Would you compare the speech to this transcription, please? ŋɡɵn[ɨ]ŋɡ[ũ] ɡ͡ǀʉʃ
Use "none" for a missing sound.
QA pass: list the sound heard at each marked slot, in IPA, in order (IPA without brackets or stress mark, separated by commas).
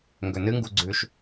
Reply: ɨ, u